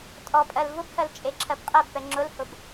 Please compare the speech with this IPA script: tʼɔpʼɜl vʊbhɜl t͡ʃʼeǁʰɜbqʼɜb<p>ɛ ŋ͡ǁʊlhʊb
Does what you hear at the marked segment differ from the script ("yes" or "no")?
no